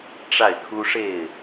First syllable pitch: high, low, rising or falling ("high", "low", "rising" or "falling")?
falling